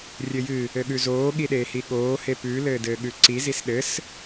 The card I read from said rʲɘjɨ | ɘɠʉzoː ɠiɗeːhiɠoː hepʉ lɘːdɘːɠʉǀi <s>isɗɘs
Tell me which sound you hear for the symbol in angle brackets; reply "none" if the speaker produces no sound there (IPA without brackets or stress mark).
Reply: z